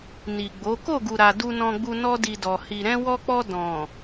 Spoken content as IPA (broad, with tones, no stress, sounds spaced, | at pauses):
n i˨ ɡ͡b o˨˦ k o˦˨ ɡ u˨ ɾ a˨ d u˧ n ɔ̃˧ ɡ͡b u˧ n ɔ˦ d i˧ d ɔ˨ h i˨ ɾ ɛ̃˧ w ɔ˧ k͡p ɔ˧ d ɔ̃˨